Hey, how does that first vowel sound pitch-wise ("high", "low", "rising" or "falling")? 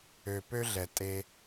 low